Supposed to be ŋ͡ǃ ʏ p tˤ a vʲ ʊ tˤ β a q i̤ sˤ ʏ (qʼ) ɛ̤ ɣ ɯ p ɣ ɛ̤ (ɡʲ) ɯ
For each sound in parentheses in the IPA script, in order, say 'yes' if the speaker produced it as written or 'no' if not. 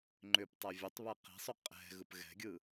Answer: yes, yes

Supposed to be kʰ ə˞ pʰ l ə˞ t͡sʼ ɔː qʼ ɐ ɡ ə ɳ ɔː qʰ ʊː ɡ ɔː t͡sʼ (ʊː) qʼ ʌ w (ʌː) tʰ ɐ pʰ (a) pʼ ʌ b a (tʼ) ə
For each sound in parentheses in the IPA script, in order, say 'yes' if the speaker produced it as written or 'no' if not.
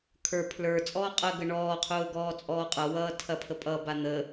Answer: no, yes, no, no

